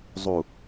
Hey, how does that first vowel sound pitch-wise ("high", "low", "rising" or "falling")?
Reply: low